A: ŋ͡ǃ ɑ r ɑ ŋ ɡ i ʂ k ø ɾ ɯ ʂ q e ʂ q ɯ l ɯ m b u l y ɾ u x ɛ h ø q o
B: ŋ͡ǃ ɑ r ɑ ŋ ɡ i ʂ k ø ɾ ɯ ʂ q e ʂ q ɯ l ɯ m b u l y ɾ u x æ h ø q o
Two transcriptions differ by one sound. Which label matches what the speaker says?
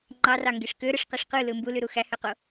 B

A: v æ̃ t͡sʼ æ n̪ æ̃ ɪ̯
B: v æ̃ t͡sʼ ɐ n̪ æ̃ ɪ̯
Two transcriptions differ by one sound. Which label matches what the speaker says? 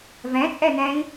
A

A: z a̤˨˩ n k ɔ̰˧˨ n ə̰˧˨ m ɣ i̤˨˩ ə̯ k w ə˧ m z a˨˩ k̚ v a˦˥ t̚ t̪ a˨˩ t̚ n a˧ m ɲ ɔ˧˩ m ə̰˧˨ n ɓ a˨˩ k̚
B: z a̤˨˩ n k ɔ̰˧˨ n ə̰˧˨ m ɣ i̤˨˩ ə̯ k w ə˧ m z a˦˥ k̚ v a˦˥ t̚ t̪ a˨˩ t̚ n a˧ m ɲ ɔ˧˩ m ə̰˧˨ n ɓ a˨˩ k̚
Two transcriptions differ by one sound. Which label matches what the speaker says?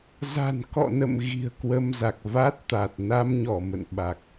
A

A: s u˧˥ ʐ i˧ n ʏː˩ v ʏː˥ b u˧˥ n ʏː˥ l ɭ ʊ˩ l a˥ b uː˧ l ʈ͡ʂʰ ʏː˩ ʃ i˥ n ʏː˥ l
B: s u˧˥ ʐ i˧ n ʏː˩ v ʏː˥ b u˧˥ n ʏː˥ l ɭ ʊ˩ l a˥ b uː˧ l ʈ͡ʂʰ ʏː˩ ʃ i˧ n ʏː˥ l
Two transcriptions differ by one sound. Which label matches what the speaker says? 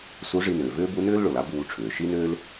A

